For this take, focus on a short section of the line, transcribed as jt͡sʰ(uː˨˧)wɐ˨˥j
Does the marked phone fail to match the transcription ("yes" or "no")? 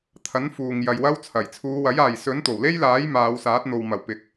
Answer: no